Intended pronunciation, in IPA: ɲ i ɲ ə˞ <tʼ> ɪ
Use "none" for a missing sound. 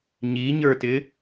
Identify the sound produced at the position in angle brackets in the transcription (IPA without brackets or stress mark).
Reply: t